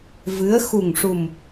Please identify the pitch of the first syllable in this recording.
rising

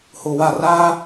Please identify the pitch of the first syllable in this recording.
low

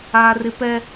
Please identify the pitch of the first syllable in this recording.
high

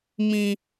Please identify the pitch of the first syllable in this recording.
low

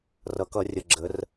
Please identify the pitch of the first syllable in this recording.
low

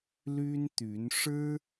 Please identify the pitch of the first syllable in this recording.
high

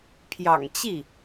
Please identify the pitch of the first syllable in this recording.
low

